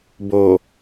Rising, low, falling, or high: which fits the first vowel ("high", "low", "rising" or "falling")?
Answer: low